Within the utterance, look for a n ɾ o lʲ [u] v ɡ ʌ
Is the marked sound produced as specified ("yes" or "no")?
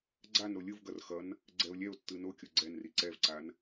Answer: no